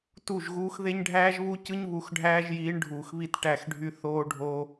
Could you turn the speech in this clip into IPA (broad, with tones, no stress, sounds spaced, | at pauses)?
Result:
t u˦˨ ʒ ɣ uː˦ x ð e˦ ɲ ɖʱ æː˦ ʒ β u˦ c ɯ˦ ɲ β u˨˦ x ɖʱ æː˦ ʒ j iː˨˦ ɳ ɖʱ uː˨ x β i˦ t ʈ æ˦˨ x ɖʱ y˦ θ oː˦ ɖʱ o˦